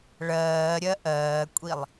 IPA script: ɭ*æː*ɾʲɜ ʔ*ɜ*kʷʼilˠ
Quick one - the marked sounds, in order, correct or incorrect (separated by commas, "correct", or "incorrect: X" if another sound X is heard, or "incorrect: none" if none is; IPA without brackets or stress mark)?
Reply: incorrect: ɜː, incorrect: ɜː